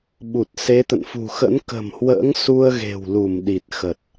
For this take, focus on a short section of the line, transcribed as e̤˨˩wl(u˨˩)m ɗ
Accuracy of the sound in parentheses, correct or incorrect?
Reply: incorrect: u˧˩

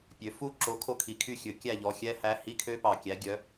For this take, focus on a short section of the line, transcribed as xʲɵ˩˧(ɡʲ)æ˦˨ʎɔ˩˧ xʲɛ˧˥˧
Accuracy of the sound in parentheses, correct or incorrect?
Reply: incorrect: kʲ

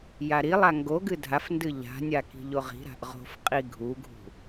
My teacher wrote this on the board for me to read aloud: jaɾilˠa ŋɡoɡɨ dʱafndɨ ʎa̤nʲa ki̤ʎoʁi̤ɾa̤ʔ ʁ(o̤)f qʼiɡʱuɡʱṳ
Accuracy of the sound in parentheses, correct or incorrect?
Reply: correct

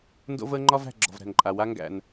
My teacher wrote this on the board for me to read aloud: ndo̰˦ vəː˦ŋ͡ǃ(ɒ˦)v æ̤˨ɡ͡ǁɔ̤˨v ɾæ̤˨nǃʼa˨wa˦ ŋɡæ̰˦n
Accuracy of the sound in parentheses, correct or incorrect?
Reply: correct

